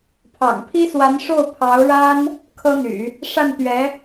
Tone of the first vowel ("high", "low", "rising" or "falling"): low